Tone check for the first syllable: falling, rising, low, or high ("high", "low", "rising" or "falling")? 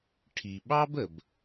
low